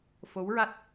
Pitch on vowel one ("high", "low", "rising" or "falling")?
rising